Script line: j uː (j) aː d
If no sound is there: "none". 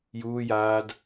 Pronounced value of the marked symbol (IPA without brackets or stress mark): j